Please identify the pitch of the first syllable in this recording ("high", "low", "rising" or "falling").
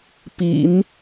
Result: low